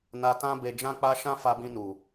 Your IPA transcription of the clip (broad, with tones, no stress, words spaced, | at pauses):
na˧tã˦ be˧ d͡ʒã˦k͡pa˦ ʃã˦fa˧bĩ˧nu˨